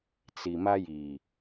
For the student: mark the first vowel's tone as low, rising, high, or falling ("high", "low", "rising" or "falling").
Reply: low